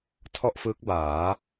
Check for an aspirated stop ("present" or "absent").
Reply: present